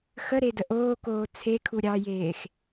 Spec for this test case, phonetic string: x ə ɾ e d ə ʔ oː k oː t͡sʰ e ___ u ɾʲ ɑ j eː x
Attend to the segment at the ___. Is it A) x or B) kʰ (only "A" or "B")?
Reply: B